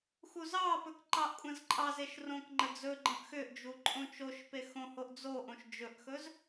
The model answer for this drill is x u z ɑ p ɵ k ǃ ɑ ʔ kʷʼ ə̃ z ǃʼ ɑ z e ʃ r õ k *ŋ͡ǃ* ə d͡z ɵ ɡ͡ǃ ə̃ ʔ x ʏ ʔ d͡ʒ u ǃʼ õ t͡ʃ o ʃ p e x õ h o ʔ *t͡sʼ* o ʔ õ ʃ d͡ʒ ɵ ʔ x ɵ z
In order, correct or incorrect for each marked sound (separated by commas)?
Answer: correct, incorrect